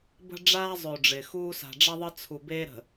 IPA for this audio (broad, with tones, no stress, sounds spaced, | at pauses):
b ə̤˦ ɖ͡ʐ aː˦ zˤ ø˨ ɖ͡ʐ ɪː˨ x uː˦ s a̤˨ ɖ͡ʐ ɐ˦ ðˤ ə˦ t͡sʰ u˨ b eː˦ ɾ ə̤˨